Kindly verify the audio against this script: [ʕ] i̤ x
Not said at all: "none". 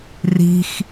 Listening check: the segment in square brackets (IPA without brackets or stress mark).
r